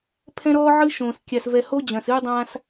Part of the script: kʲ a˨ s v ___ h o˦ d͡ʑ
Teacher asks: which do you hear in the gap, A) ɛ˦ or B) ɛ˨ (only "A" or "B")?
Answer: B